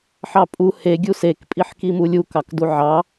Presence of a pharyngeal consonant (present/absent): present